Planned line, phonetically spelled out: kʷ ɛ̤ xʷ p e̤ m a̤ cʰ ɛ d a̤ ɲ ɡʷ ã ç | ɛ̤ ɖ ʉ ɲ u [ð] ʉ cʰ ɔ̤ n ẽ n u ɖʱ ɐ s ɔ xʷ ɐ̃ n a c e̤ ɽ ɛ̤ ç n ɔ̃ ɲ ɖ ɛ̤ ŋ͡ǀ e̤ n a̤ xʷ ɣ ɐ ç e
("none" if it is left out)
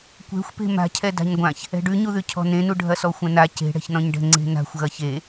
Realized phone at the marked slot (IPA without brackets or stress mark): ð